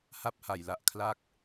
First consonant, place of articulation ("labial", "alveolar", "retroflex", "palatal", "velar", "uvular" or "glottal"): glottal